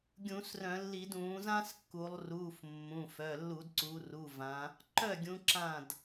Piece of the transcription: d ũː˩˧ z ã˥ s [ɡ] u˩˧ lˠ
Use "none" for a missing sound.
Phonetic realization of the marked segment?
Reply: kː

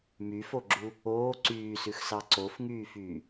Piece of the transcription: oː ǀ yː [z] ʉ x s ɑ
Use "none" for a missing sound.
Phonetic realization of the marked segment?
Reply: s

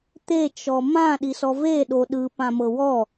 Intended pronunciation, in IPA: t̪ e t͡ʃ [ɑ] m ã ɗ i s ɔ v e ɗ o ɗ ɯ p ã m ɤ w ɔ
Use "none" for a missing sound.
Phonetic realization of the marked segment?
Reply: ɔ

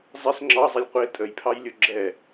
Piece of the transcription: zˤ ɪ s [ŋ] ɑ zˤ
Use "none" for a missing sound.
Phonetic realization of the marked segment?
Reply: ŋ͡ǁ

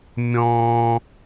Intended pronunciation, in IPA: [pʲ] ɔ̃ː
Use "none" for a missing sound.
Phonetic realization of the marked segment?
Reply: mʲ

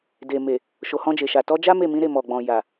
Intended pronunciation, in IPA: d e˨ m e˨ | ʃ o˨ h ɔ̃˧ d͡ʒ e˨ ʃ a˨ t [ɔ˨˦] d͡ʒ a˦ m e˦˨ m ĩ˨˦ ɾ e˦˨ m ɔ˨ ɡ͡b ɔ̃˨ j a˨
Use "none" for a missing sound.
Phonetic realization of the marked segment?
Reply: ɔ˨˦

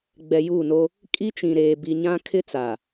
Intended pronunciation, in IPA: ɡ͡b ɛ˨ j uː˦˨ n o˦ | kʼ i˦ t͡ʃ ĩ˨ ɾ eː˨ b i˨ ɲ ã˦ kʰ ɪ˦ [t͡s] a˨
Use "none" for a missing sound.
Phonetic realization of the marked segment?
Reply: t͡s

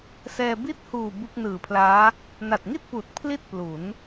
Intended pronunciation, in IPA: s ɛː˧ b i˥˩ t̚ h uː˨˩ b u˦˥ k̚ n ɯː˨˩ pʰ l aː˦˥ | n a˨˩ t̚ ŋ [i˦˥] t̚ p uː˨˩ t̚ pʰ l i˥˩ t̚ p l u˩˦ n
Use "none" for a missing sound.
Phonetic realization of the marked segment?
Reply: i˥˩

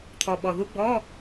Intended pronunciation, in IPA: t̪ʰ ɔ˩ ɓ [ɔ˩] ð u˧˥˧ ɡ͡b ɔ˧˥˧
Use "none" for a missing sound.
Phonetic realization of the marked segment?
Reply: ɔ˩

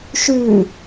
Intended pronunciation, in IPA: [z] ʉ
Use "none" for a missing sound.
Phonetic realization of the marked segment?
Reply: ʃ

